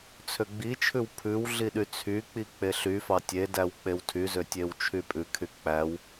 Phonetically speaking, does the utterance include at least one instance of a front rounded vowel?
yes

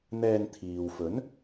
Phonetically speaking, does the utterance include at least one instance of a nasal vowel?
no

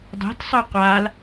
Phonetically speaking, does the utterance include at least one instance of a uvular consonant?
yes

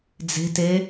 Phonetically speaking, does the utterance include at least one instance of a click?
no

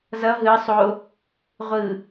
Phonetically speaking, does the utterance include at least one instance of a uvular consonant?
yes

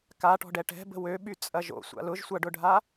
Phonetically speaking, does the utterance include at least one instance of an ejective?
yes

